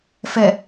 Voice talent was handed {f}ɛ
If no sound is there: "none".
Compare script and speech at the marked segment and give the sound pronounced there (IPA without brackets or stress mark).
f